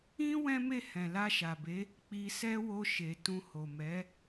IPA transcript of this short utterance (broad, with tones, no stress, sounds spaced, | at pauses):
ĩ˦ w ɛ̃˦ m e˦˨ h ɛ̃˨ l a˧ ʃ a˨ b e˨˦ | k͡p i˧ s ɛ˦ w o˧ ʃ e˨ t ũ˧ h o˨ m ɛ˨˦